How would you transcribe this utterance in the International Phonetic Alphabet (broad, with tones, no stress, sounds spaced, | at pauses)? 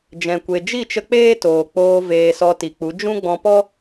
d͡ʒ ɛ̃˨ kʷ e˨ d͡ʒ i˦˨ t͡ʃ ə˧ k͡p eː˦ t oː˨ k͡p oː˧ v eː˧ s ɔ˧ t i˨ k͡p u˨˦ d͡ʒ ũ˦ ɡ͡b ɔ̃˧ p ɔ˦